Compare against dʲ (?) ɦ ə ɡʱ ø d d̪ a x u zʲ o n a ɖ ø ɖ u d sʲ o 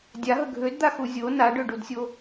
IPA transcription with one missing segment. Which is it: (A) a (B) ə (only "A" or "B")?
A